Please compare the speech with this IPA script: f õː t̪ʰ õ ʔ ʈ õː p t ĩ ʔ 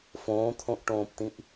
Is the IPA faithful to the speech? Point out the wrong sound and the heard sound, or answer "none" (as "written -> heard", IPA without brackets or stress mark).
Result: none